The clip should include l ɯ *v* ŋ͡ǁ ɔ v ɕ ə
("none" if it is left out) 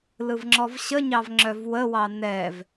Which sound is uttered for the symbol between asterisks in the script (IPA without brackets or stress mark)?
v